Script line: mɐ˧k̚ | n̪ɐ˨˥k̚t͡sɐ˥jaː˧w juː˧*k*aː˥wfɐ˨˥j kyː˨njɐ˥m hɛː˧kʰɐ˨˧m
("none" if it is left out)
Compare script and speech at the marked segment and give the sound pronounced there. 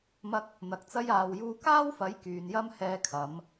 k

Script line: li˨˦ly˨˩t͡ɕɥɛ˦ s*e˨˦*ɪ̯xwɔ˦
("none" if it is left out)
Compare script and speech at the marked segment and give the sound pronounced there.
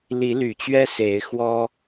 e˨˦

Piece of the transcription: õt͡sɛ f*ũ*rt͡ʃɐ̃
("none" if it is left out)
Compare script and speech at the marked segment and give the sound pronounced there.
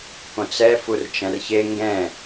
u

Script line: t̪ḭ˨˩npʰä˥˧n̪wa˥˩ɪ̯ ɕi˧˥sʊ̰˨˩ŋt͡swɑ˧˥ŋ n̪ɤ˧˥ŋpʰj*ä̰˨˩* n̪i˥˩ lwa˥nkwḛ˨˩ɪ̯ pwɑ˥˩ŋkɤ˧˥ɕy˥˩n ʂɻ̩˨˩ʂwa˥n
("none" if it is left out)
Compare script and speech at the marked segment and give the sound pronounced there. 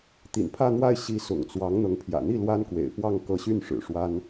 ä̰˨˩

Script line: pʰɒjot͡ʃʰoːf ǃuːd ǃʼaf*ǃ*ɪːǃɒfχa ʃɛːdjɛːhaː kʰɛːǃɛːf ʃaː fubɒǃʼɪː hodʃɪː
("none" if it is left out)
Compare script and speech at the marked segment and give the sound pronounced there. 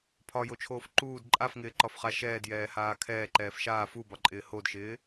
ŋ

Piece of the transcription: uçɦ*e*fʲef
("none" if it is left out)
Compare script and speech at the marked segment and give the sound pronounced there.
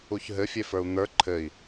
ɘ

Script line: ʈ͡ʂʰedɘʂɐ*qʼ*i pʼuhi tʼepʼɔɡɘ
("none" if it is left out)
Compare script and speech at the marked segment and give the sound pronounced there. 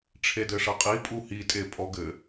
qʼ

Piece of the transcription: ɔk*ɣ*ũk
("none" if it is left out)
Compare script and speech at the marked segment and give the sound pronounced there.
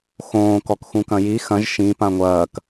x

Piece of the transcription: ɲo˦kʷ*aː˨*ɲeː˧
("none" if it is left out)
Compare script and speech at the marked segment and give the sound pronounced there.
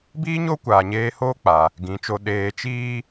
aː˨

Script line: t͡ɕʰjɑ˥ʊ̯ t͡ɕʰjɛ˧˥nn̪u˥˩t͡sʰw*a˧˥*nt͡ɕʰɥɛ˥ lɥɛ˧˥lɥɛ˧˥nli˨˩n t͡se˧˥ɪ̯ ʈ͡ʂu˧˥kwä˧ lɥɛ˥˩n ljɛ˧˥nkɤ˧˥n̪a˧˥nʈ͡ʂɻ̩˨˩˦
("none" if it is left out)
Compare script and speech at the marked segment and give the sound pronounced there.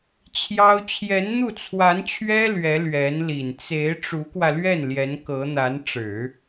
a˧˥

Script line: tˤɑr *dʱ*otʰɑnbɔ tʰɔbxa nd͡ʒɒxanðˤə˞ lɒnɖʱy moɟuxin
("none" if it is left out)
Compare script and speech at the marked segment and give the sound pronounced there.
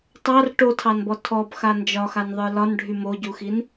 ʈ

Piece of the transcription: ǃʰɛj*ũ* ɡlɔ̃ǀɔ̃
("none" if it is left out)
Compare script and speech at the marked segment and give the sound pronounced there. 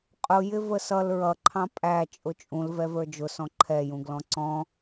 ũ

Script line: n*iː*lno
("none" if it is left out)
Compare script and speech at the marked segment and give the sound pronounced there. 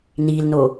iː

